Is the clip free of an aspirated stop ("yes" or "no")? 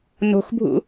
yes